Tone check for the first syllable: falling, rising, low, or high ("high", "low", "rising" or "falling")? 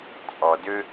low